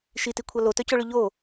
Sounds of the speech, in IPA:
ʃitikʷʰɐ lotœcoɭʏ ʎo

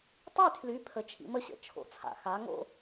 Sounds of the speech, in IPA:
tˤy˥˨tʰly˨˦ pʰə˨˦t͡ʃʰḭ˨˦mə˨˦ɕə̰˩ t͡ʃʰo̰˨˦t͡sʰa̰˩ xa˨˦ŋo̰˦

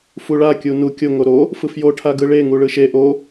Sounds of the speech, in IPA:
fuɭa kʲunu kʲo ŋoɾo | fɯfjo ʈʰaɡɯɭe ŋuɭɯʃe ʔo

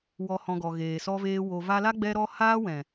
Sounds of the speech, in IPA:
wɔ˨hɔ̃˨ ɡɔ˨ɣeː˨sɔ˧veː˧ wo˨va˧la˦ ɡ͡bɛ˦ɾɔ˦ haː˦wɛ̃˨

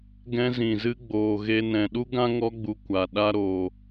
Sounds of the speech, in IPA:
ɡɛ̃˧zĩ˨zɨ˧ ɡ͡boː˨ɣe˧nɛ̃˨ ɗu˦ɡã˦ŋɔ˧ɡ͡bu˨ kʷa˨ ɗa˦ɾoː˨

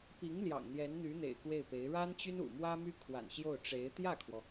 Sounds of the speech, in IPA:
pi˧˥ŋ ljɑ̰˨˩ŋn̪jɛ˧˥nn̪y˧˥n̪ḛ˨˩ɪ̯ kwe˥˩ɪ̯pe˧˥ɪ̯ ɻa˥nt͡ɕy˥nṵ˨˩mwä˥ my˥kʰwa̰˨˩n ɕjo˥˩ʊ̯ʈ͡ʂe˧˥ɪ̯ t̪jä˥˩kʰwɔ˩

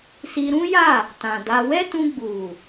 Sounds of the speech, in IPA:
si˧ɾũ˦ja˦˨ | tã˨da˧ wɛ˦ tũ˧ɡ͡bu˨

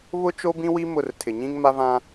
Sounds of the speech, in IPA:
βʊ˦ t͡ʃo˦bĩ˦wi˦ mʊ˦˨rtʰɪ˨ ɲĩ˦ŋma˦vã˦

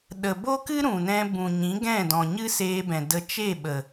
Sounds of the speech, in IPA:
ɗə˨bo˦kɨ˦ ɾũ˨nɛ̃˧ bũ˨ɲĩ˨˦ ɡɛ̃˦˨dɔ̃˨ɲɨ˦ seː˧bɛ̃˨də˧ t͡ʃe˦˨ɓə˨

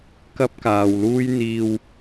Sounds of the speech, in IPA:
kɐ˥p̚kaː˨wluː˥j n̪iː˧w

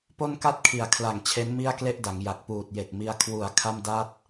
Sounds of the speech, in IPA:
po˥˩nka˥˩t̚kʰi˨˩a̯kʰla˨˩ŋ t͡ɕʰe˦˥nmi˥˩a̯kle˥˩ʔ da˩˦ŋja˨˩k̚ puː˨˩t̚je˨˩k̚mi˧a̯ kʰwu˨˩a̯ kʰa˥˩m da˥˩t̚

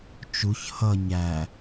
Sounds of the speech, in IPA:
t͡ʃuç hʌ ɲæ

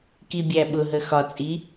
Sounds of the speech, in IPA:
kibʲæɓʊɦə xɒt͡sʼi

